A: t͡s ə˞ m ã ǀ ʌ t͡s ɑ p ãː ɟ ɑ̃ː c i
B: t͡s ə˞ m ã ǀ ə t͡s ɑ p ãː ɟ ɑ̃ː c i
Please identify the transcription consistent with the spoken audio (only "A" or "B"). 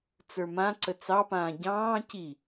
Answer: B